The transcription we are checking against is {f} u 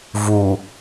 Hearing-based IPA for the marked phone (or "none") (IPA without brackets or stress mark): v